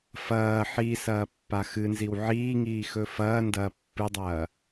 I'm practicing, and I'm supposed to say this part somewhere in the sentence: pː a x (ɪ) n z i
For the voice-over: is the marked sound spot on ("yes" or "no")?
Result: no